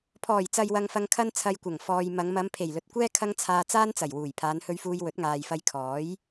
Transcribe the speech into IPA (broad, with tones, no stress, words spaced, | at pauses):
pʰɔː˨˩jt͡sɐ˨j wɐ˧ŋfɐ˧ŋ kʰɐ˧n t͡sʰɐ˧jkʷɐ˨˩ŋ fɔː˧j mɐ˨˧ŋ mɐ˨˧mpʰe˨˩jlɵ˨t̚kʷɛː˥ kʰɐ˧ŋ t͡sʰaː˧t͡saː˥nt͡sɐ˨˩j wuː˨˩jpʰaː˨˧nhɵ˧ɥfuː˧j wɵ˨˥t̚ŋaː˨jfɐ˧j kʰɔː˨˥j